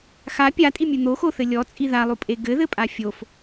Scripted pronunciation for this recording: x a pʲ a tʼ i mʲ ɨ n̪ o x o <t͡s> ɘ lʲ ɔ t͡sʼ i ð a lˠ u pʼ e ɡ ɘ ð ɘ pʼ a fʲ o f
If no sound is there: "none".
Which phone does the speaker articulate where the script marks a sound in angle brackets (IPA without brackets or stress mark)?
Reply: θ